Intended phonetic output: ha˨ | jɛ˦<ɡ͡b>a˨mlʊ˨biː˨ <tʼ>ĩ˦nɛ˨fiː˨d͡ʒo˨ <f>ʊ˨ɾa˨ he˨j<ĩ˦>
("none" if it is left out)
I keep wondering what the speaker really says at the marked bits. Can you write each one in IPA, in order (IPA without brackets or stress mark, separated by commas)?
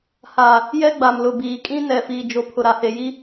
ɡ͡b, kʼ, pʰ, i˦